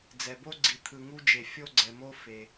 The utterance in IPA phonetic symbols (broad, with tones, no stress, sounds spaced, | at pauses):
d͡z ɛ˩ b o˦ ɡ͡ǀ i˩ t̪ʰ ɯ˩ ŋ u˦ d͡ʒ e˩ fʲ o˦ ɡ͡ǀ ɛ˩ m o˦ f e˩